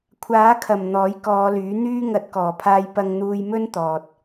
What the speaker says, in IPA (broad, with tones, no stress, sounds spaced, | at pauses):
kʷʰ aː˨˥ kʰ ɐ˨˩ m n̪ ɔː˨˥ j k ɔː˨˧ l yː˨˥ n̪ yː˥ ŋ ɐ˨˥ t̚ k ɔː˨˩ pʰ aː˧ j p ɐ˧ ŋ n̪ uː˧ j m ɵ˥ n t̪ ɔː˨ t̚